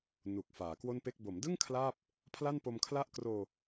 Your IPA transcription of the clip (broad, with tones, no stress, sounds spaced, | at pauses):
n u˨˩ k̚ f aː˩˦ k w o˥˩ n p e˥˩ k̚ b o˩˦ m d ɯ˥˩ ŋ kʰ l aː˥˩ p̚ | pʰ l a˥˩ n p o˧ m kʰ l a˥˩ ʔ k r oː˧